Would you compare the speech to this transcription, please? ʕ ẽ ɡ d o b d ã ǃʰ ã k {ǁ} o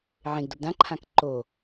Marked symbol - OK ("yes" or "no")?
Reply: no